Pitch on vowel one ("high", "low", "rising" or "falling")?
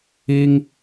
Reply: high